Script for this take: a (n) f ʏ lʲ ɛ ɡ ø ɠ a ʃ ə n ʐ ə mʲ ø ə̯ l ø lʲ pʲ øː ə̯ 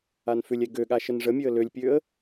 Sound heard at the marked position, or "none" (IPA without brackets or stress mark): n